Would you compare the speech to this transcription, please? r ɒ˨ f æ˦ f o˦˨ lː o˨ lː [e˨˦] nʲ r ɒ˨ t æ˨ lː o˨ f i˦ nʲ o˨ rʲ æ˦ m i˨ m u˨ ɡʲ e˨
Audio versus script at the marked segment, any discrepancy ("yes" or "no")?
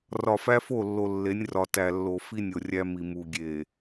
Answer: no